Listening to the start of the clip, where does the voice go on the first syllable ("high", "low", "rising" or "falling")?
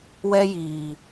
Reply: high